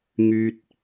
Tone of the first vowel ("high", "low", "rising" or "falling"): low